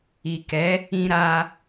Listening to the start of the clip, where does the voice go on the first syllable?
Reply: low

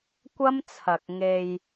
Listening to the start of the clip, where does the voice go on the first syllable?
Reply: high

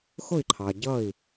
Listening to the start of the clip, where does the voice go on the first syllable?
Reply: falling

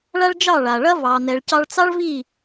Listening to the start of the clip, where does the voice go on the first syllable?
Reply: high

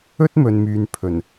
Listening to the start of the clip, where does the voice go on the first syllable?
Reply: high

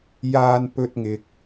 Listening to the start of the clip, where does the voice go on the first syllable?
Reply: high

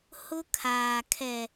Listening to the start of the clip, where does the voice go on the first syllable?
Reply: high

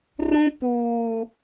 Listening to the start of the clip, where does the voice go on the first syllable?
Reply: high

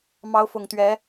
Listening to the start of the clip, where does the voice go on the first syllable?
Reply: rising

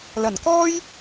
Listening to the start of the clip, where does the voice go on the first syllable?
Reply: low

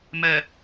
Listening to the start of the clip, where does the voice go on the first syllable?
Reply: low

